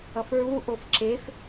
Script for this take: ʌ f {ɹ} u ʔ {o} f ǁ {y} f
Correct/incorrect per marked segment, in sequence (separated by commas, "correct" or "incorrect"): correct, correct, incorrect